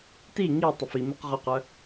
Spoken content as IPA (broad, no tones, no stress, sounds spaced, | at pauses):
t i ŋ i tˤ ʊ f i m ʊ q ʁ ø q œ